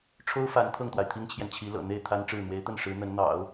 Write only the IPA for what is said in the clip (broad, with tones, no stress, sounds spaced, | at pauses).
ʈ͡ʂʰ o˥ ʊ̯ f a˧˥ n t̪ʰ ɤ˥˩ ŋ t̪ w a˩ ɪ̯ t̪ʰ i˥ ŋ t͡ɕʰ j ɛ˨ n t͡ɕʰ i˧˥ l ɤ̰˨˩ n̪ e˥˩ ɪ̯ t̪ʰ a˥ n ʈ͡ʂ ɻ̩˥˩ n̪ w e˧˥ ɪ̯ t̪ ə˥˩ n ʂ ɻ̩˧˥ n̪ ə˧˥ n n̪ ɑ̰˨˩˦ ʊ̯